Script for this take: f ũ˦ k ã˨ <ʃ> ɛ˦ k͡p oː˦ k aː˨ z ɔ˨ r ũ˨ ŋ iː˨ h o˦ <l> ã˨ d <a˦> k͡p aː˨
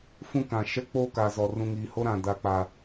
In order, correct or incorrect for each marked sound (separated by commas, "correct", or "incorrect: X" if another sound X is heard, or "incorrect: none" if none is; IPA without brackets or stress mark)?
correct, incorrect: ɾ, incorrect: a˨